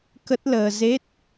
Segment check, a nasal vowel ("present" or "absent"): absent